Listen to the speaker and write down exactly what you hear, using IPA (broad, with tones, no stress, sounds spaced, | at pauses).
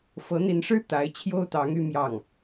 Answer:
f ɤ˧˥ n̪ i˧˥ n ʂ ɻ̩˥ t̪ a˧˥ ɪ̯ t͡ɕʰ j o˥ ʊ̯ t̪ ɑ˧˥ ŋ y˥ m j ɑ˥˩ ŋ